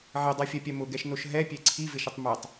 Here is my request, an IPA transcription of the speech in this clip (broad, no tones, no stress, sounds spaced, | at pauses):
ʕ e dˤ a fʲ ɛ pʲ ɛ m ʊ ɡ ɛ ʃ n o ʃ ɦ ɛ pʲ e ǀʰ i v ɪ ʃ ɪ tˤ m ɛ tˤ